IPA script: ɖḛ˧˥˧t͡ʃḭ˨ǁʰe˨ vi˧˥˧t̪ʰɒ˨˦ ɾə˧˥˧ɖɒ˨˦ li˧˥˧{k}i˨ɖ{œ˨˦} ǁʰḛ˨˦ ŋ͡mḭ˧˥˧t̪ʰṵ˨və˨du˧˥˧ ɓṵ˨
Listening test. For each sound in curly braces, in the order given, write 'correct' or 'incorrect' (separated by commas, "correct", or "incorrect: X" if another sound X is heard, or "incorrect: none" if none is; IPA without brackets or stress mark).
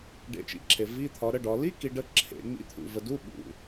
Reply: correct, incorrect: ə˨˦